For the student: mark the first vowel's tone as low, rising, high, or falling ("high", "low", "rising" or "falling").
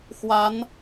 rising